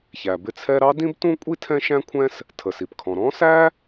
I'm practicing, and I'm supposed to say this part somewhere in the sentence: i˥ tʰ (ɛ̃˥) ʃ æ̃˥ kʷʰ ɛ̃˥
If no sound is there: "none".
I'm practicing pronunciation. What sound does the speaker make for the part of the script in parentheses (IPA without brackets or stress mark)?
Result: ɛ̃˥